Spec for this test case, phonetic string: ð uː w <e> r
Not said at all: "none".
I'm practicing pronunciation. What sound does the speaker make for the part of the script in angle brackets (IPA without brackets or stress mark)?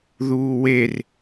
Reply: e